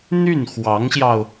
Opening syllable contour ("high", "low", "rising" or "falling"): falling